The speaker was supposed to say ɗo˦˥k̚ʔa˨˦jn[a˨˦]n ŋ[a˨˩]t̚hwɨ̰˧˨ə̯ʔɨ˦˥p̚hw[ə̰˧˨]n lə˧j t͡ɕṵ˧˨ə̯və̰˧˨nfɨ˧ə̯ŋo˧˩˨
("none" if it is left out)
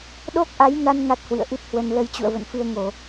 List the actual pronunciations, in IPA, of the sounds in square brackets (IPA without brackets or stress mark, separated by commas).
a˧, a˦˥, ə˧